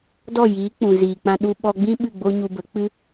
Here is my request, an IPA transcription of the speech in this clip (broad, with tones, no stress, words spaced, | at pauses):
dɔ˦˨jiː˨˦ k͡pũ˨ziː˨k͡pã˧ ɗu˧ ɓɔ˧ɡ͡bĩ˦ ɓɨ˦˨ɡ͡bo˦ɲu˧ bə˨˦k͡pɨ˦